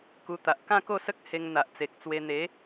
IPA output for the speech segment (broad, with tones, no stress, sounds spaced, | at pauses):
k u˧ t̪ a˨ ʔ k ã˥˧ k o˥˧ s ə˦ k̚ h e˧ ŋ n̪ a˨ ʔ t͡s e˨ k̚ t͡s w e˧ n̪ e˨˦